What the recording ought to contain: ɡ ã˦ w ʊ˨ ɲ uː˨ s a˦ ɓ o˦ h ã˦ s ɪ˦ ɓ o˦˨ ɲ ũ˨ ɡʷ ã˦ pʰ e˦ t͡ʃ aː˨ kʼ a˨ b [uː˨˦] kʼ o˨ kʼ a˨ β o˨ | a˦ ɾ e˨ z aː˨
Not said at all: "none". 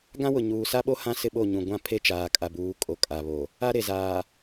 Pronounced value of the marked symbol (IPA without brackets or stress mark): uː˨˦